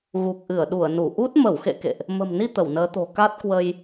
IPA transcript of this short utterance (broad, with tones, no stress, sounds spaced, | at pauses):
ɣ u˨˩ k̚ ʔ ɨ˧˩ ə̯ ɗ u˧˩ ə̯ n u˧˩ ʔ u˦˥ t̚ m ə˧˩ w x ḛ˧˨ k ḛ˧˨ ʔ | m ə̤˨˩ m n i˧ t̪ ə˧˩ w n əː˨˦ t̪ o̤˨˩ k a˦˥ t̚ k w ə˧ j